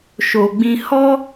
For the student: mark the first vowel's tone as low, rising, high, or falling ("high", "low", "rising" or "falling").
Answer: low